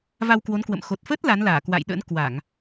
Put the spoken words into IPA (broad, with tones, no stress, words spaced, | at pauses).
va˧wkwo˨˦nkwə̰˧˨m xo˨˩t̚fə˦˥t̚ la˨˦nlaː˧˩kwa̰˧˨jɗə̰˧˥n kwa˧˩˨ŋ